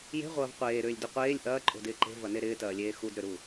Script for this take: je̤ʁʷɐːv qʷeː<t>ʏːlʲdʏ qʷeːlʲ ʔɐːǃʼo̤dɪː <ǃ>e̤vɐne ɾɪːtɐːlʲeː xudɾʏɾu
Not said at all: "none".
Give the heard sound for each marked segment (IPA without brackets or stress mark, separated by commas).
ɾ, ǃ